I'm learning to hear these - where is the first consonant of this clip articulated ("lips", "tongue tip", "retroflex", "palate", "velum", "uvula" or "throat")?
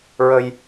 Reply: tongue tip